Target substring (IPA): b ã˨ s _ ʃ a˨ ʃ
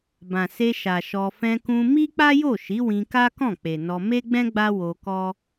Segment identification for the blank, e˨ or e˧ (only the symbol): e˧